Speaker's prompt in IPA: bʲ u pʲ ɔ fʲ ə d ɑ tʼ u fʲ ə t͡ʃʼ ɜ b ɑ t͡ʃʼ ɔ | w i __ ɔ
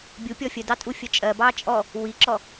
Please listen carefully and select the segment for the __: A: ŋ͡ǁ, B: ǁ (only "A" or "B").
B